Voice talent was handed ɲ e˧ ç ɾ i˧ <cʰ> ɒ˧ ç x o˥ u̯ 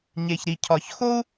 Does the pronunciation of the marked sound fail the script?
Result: no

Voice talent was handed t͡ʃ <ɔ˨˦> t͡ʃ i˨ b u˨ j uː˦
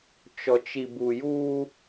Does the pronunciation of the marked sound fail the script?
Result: yes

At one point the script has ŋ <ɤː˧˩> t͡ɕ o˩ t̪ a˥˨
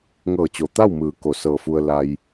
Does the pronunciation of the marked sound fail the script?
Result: no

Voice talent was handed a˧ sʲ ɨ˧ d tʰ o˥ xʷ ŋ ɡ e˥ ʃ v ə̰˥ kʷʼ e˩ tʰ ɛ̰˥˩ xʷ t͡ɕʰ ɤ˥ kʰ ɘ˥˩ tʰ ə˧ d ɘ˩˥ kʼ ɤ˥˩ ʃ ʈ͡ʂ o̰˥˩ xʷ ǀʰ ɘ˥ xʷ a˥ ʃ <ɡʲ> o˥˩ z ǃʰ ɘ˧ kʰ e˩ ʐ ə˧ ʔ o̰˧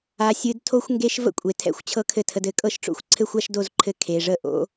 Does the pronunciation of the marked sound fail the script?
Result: yes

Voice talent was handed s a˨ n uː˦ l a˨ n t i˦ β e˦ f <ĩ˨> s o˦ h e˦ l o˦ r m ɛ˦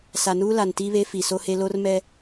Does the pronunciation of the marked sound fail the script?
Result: yes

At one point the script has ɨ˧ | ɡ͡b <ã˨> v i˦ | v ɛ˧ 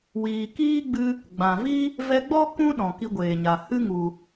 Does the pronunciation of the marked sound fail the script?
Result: no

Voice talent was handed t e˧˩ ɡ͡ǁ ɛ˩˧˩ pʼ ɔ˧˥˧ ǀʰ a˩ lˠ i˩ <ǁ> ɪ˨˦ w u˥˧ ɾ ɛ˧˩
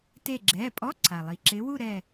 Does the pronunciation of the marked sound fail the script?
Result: no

